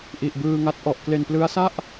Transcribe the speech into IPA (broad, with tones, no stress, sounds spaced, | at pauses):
ʔ i˨˩ ʔ b ɯː˧ ŋ a˦˥ t̚ ʔ ɔ˨˩ ʔ k l e˨˩ n p l ɯ˦˥ a̯ s a˥˩ ʔ